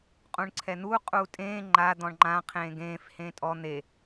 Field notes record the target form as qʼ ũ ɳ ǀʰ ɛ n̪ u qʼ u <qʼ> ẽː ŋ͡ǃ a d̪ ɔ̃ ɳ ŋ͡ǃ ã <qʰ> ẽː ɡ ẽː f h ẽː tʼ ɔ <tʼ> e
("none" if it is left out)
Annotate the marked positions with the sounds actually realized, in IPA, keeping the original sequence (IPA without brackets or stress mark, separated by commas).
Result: tʼ, qʰ, n̪